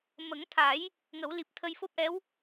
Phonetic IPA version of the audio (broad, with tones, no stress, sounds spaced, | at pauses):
m ə˨˩˦ ŋ t̪ʰ a˨˩˦ j | ŋ ə˨˩˦ w l i˨˩ p̚ t̪ʰ ə˧ j f o˦˥ p̚ ʔ ɛ˧˥ w